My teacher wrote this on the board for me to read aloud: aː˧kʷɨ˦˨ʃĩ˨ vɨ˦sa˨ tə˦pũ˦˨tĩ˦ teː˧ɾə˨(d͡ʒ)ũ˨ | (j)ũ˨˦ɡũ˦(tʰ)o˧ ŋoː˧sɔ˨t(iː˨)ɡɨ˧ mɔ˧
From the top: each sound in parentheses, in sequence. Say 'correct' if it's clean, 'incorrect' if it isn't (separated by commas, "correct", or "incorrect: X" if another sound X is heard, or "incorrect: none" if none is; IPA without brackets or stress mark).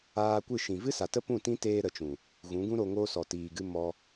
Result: incorrect: t͡ʃ, incorrect: ɣ, incorrect: ɾ, correct